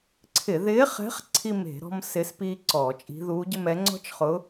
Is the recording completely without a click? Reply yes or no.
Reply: no